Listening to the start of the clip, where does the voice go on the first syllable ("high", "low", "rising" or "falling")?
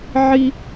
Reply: high